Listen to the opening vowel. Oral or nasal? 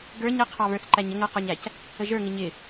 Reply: oral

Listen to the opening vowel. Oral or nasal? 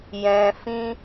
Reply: nasal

